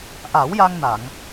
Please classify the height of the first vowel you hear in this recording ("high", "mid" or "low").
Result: low